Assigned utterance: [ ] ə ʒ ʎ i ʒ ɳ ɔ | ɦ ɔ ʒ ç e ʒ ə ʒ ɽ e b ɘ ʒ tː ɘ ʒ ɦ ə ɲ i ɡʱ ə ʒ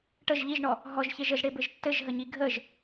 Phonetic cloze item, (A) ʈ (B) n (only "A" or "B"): A